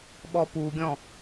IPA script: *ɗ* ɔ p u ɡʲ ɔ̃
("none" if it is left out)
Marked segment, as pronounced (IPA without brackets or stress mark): ɓ